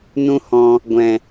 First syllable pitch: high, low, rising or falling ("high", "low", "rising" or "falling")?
high